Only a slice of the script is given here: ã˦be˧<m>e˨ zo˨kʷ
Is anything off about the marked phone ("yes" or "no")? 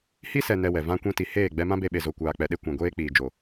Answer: yes